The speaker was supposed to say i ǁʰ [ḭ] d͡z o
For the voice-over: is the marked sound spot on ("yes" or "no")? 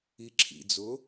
yes